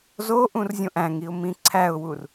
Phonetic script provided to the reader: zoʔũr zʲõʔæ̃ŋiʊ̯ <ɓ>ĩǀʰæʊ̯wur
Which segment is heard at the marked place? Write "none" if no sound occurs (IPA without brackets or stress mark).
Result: m